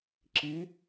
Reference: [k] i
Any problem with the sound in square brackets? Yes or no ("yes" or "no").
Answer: yes